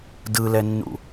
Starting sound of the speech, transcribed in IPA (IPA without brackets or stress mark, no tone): d